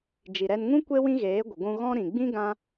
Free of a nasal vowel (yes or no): no